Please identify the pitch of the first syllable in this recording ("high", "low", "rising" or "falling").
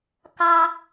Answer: high